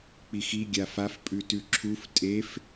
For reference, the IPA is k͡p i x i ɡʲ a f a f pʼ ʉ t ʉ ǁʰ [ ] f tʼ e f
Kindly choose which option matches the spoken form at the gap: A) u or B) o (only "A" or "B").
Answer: A